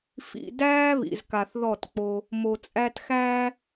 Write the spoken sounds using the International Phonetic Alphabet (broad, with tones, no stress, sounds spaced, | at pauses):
f ḭ˨ d æː˦ β ḭ˨ z k a˨ θ ð ɔ˦˨ t k͡p o˦ | m o˨ t͡sʼ æ˦ t x æː˦